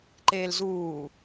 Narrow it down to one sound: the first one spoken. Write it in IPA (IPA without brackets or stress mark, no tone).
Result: ǃ